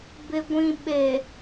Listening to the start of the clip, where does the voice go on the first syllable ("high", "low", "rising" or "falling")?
low